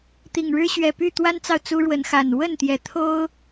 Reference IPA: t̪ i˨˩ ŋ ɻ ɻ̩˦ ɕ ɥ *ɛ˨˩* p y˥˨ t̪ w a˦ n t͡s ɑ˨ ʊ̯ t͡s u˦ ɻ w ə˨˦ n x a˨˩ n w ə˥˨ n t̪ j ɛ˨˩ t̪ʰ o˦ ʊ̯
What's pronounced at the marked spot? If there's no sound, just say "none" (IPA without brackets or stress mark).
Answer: ɛ˨˩